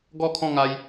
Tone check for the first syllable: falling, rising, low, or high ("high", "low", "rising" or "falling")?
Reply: falling